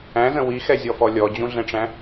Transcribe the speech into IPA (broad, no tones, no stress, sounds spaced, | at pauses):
æ̃ z ə̃ w i x ɛ zʲ ɔ f ɔ lʲ ɔ d͡ʑ ũ ɮ ɛ̃ ʈ͡ʂ æ̃